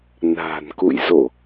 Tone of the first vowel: low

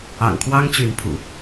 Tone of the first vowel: low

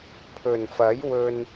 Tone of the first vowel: low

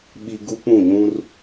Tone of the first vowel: low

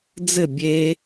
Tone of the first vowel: falling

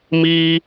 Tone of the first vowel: high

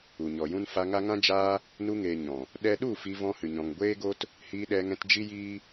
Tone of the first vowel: low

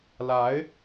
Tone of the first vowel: rising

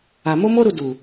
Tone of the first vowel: low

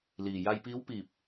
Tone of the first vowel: low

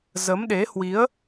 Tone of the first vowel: rising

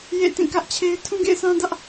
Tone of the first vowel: falling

